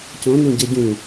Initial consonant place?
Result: palatal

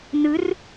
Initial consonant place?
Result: alveolar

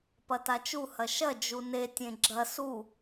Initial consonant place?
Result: labial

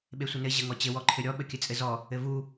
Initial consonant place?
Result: labial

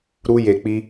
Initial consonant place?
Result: alveolar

